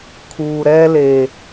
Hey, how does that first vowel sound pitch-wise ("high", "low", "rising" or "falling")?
low